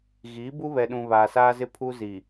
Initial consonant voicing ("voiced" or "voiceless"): voiced